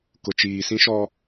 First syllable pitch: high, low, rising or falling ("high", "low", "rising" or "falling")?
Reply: low